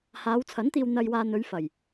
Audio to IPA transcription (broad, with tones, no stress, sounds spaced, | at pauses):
h aː˨˧ w t͡sʰ ɐ˨˥ n t̪ iː˧ w n̪ ɐ˧ j w aː˧ n̪ ɵ˨˧ ɥ f ɐ˨˩ j